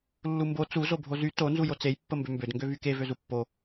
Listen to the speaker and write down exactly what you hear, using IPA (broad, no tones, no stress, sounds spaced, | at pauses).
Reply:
lː u m b o t͡s u z o bʱ o z y t o n z u j o t͡s e j pː ə m b ø m b ø d ŋ ɡ ø v y k e v ø z u pː o